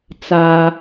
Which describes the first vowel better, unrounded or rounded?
unrounded